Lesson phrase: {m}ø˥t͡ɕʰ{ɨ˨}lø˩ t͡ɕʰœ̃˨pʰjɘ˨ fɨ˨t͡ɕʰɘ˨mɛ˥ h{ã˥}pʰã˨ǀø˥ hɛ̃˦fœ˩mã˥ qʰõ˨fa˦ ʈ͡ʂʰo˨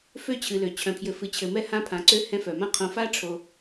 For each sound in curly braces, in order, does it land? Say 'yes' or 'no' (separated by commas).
no, yes, yes